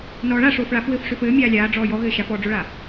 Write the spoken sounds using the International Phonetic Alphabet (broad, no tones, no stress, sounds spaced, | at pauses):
n ɔː ɭ a ʂ oː f ɭ a f w ɘː f ʂ ø f ɘː mʲ aː lʲ aː ɖ͡ʐ ɔː j ɔ ɣ ɘː ʃ a f ɔː ɖ͡ʐ o ɭ a